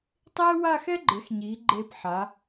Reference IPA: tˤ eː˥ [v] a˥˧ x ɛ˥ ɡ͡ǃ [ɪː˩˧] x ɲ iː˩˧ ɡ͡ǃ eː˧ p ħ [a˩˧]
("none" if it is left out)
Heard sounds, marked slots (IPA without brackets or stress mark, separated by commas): w, ɪː˩˧, a˩˧